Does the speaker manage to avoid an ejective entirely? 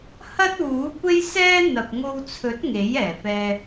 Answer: yes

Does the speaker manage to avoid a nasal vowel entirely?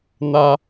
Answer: yes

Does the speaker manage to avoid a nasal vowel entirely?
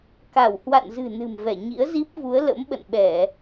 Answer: yes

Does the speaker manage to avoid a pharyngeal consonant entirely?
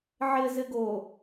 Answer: no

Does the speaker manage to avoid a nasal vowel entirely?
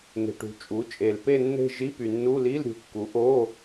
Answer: yes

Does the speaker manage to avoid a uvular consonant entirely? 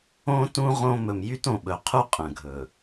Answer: no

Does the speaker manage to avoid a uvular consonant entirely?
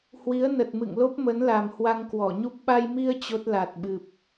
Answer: yes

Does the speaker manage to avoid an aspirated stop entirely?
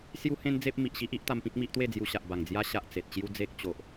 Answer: yes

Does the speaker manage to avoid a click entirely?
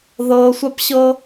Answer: yes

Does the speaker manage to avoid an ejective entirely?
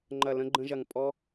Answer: no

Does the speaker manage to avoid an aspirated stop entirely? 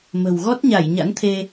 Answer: no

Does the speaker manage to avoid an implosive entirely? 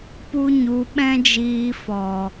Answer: no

